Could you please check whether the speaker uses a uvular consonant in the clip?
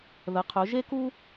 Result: yes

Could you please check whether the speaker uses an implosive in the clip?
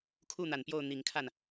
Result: no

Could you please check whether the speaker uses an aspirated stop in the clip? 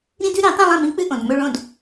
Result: no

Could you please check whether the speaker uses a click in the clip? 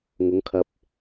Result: no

